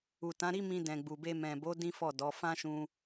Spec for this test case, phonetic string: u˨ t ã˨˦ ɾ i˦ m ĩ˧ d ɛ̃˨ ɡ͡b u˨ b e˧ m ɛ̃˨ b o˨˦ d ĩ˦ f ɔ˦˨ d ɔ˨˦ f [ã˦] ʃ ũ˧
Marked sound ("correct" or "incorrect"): correct